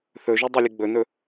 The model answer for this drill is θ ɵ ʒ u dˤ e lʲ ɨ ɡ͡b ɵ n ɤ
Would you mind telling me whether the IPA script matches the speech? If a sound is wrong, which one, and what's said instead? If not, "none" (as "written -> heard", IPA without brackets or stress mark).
ɤ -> ɵ